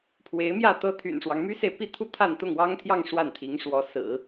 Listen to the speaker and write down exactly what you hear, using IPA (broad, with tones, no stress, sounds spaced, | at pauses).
pʰ w e˧˥ ɪ̯ m j ä˥˩ t̪ ɤ˥ t̪ʰ y̰˨˩ n ʂ w ɑ˦ ŋ m y˥ s e˨ ɪ̯ p i˥˧ t̪ʰ u˥˧ t̪ʰ a˥˧ n t̪ ʊ˥˩ ŋ w ɑ˥ ŋ t̪ʰ j ɑ˥˧ ŋ ʂ w a˥˩ n t̪ʰ i˧˥ ŋ ʂ w ɔ˧˥ s ɹ̩˨˩˦